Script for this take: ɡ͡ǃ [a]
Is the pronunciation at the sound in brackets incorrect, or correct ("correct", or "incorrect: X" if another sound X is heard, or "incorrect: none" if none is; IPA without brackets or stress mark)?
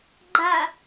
correct